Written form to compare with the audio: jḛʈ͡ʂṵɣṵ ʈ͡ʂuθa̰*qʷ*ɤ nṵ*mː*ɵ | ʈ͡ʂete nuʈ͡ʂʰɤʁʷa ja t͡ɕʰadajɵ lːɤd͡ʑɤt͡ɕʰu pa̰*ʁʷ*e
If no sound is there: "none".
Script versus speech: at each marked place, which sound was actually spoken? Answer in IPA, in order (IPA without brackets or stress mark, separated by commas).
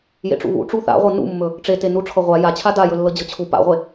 ʁʷ, mː, ʁʷ